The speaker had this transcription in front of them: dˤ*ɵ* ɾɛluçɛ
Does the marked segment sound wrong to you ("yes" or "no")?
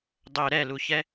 no